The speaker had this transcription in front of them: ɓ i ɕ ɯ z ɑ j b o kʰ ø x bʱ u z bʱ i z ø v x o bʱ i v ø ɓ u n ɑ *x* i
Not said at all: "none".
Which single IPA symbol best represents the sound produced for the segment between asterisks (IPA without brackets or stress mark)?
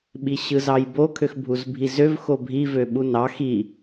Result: x